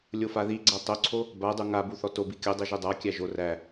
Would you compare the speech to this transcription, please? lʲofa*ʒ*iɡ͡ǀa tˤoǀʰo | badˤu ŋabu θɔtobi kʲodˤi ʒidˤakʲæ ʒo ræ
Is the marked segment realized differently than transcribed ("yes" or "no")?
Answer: yes